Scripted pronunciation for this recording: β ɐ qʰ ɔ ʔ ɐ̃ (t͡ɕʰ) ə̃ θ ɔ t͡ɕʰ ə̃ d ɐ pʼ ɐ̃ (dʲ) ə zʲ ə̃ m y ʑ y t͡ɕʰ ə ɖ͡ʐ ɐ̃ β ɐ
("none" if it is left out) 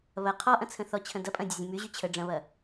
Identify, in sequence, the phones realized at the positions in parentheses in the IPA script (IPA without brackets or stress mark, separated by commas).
t͡sʰ, dʲ